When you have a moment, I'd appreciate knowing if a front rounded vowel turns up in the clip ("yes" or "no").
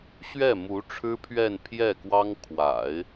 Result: no